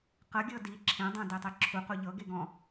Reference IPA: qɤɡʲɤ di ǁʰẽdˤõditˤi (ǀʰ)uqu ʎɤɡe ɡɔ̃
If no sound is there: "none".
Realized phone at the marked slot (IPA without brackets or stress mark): ǁʰ